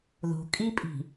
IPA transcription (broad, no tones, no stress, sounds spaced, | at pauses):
ð o̤ kʼ i pʼ i̤